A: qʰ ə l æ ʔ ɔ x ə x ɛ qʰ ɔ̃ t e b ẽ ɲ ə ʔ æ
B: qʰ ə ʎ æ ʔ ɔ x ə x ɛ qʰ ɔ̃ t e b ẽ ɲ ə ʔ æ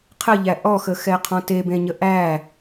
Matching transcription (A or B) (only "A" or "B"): B